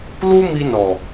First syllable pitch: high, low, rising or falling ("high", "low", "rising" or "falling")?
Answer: high